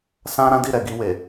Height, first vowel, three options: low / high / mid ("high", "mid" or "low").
low